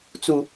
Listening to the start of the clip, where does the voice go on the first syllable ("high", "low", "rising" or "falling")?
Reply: high